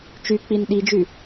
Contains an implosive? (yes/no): yes